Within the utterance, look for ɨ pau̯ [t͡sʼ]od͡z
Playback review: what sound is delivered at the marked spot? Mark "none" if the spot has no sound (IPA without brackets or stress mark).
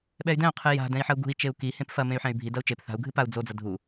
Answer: d͡z